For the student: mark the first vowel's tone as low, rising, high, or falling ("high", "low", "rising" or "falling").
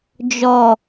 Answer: low